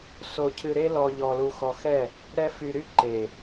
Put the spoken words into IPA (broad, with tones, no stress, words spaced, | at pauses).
so˧cʰɨ˧ɾe˦lɔ˧ ʎɔ˧lu˧xɔ˧xɛ˦˨ | ɾɛ˦fy˧ɾy˦ ǃe˨